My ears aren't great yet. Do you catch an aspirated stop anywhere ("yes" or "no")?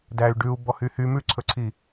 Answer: yes